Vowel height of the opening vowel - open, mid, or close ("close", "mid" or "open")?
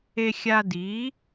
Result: mid